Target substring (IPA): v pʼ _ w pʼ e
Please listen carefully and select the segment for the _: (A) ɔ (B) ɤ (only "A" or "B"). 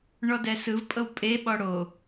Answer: B